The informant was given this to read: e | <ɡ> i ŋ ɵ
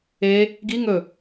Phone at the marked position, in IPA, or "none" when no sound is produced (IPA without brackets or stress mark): ɡ